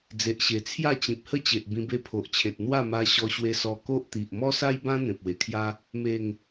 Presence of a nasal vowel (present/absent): present